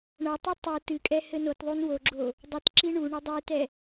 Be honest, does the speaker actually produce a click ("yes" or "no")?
yes